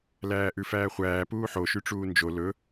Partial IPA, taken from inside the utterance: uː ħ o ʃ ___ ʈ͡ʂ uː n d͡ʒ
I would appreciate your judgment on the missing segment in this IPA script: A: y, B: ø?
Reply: A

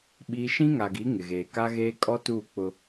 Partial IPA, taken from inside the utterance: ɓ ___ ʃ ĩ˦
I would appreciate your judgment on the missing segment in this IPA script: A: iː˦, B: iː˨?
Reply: A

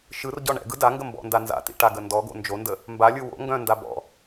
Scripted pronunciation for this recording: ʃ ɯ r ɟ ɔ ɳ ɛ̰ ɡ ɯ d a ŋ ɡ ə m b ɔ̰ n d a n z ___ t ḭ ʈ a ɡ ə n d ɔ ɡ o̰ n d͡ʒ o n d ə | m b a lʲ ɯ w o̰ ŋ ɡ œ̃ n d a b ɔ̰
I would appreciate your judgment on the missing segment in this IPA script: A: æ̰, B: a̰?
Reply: B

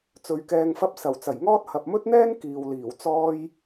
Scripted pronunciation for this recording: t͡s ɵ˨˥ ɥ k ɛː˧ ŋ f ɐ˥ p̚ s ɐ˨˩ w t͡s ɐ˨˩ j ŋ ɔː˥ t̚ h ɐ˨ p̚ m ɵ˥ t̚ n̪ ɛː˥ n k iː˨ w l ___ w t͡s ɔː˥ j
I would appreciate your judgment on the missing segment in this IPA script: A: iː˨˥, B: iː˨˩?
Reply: B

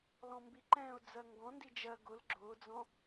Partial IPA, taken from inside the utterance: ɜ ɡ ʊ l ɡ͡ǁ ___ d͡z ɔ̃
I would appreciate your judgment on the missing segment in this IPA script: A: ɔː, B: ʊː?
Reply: B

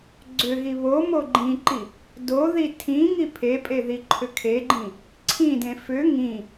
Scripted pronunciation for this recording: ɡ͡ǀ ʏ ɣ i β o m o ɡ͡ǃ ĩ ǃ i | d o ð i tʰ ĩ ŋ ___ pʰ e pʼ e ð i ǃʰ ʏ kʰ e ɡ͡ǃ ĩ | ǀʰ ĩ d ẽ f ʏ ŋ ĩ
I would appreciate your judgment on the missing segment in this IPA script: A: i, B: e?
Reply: A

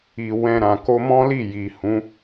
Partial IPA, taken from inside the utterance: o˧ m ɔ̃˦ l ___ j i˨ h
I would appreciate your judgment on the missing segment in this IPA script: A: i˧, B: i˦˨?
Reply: B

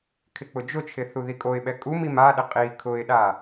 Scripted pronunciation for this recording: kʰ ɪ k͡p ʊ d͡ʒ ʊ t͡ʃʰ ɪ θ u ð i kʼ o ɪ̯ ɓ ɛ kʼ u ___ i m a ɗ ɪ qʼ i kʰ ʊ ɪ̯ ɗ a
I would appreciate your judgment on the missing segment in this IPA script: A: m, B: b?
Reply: A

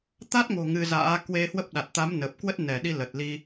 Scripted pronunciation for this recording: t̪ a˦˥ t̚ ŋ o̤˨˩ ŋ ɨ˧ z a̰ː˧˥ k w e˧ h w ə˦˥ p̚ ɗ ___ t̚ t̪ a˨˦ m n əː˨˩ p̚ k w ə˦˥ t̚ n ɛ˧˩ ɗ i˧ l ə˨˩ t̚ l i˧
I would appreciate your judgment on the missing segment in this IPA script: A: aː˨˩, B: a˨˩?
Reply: B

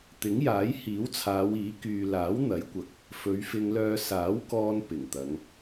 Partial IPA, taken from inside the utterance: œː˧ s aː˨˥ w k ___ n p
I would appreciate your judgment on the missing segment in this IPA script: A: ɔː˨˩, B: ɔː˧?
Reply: B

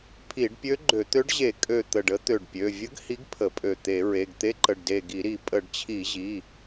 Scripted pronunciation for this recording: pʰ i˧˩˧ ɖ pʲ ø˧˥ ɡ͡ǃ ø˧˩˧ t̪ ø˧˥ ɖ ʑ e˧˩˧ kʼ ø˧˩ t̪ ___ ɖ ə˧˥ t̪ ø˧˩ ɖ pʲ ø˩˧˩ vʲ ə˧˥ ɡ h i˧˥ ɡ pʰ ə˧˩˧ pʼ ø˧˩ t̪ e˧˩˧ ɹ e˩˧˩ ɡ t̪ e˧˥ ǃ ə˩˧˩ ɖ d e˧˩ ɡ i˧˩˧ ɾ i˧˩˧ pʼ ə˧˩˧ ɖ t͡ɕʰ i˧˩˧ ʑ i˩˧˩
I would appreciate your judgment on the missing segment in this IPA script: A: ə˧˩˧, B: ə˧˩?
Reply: B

